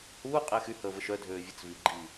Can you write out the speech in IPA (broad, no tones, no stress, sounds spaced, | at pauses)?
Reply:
h uː qʼ eː x y h əː v ə ʃ œ dʱ øː vʲ ə t͡s v i ɡ͡ǃ i